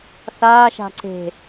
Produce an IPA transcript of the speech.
θ aː ʃ a̤ ǀ e̤

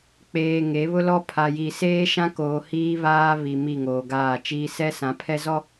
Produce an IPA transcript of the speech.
k͡p eː˨ ŋ e˨˦ β ʊ˦ l ɔ˦ pʰ a˨ j i˨ s eː˦ ʃ ã˦ k oː˨ h iː˦ β aː˦ β i˨ m i˦˨ ŋ oː˨ ɡ aː˦˨ t͡ʃ iː˦ s ɛ˦ s ã˨˦ pʰ ɛ˦ z ɔ˦

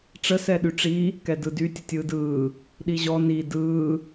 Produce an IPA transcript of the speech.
ʈ͡ʂ ə s ɛ ɗ y ʈ͡ʂ i | k ɛ d ɯ d y tʲ ə tʲ ɯː d ɯː | ɗ i ʑ ɔ n i d ɯː

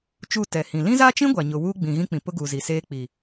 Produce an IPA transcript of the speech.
t͡ʃ u˦˨ t ɛ˨ h ĩ˨ l ĩ˦ z a˦ t͡ʃ ĩ˦ ɡʷ a˨ ɲ ʊ˨ w uː˦ ɡ͡b ĩ˨ ɣ ĩ˦ k͡p ĩ˨ p ʊ˦ ɡ u˨ z i˨ s eː˦ k͡p i˨

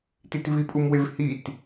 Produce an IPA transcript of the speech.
t i t v i pʼ u m w e v h i t

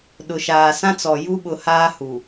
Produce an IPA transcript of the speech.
ɗ ʊ˨ ʃ aː˨ s ã˦ t͡s ɔ˨ j u˦ ɓ ʊ˨ h aː˦ h u˨

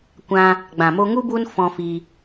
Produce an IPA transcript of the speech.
kʷ ã˧ | ɡ͡b ã˨ m o˧ ŋ u˦ b u˦ n f ɔ̃˧ f i˧

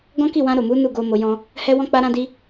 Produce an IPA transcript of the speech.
ɡ ɔ̃˦ k i˦˨ w ã˧ ɾ o˨ m u˨˦ n u˦˨ ɡ o˧ m o˧ j ɔ̃˦ | h ɛ˧ w ɔ̃˧ k͡p a˦ ɾ ã˦ d i˦

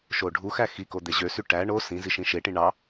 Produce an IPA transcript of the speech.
ʃ o ɖʱ u x æ x i k o d̪ e ʑ ø s y ʈ æ ɳ o s ĩ z i ʃ ĩ ʃ e ʈ ĩ ɳ ɑ

